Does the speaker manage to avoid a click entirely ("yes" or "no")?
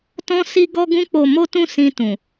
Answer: yes